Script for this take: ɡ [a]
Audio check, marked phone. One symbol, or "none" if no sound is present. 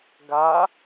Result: a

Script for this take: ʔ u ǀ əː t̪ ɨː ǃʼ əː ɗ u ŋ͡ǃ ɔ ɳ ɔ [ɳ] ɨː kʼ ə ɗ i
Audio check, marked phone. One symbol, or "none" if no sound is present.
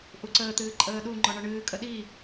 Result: ɳ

